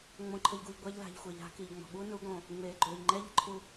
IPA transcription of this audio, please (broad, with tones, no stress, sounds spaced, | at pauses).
ŋ͡m õ˨ ǃʰ ə˨ ʎ ɡ u˨ ʎ ɡʷ ɛ˧ ʎ l a̤˨ ʎ xʷ e˨ ʎ a̤˧ k i˨ ʎ ŋ͡m ɔ̤˨ ɓ u˦ n u˨˦ ɡ õ˨ | ŋ͡m eː˨ ɡ͡ǃ øː˨ ʎ ŋ͡ǃ ɛ˦ ʎ ə̤˦ ǃʰ u˧